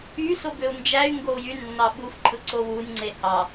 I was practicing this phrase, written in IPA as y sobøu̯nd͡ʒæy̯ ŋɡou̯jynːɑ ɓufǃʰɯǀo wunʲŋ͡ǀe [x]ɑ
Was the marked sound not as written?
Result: yes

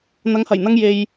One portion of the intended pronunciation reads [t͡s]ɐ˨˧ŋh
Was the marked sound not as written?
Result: yes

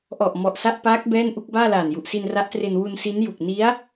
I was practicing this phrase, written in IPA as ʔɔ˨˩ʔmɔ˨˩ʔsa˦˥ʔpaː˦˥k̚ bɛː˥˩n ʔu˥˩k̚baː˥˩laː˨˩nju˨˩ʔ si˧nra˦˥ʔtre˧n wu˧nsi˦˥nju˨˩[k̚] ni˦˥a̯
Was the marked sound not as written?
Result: no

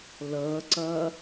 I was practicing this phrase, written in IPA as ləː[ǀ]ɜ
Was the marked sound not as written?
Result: no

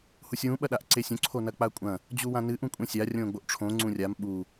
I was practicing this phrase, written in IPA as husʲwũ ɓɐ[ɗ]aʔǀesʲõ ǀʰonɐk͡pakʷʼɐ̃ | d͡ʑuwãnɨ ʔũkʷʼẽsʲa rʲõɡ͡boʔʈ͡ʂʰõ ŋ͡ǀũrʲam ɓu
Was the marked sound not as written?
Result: no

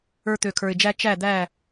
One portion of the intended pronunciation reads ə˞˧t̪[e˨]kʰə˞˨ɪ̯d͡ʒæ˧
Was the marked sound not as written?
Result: yes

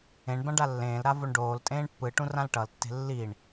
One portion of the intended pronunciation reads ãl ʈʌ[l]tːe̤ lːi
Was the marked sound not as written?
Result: no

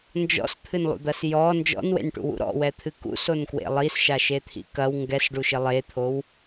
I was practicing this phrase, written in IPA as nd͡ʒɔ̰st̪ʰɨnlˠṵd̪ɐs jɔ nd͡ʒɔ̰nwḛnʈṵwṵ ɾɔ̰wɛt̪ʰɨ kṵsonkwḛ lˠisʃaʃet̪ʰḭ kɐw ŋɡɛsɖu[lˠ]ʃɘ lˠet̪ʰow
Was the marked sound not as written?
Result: yes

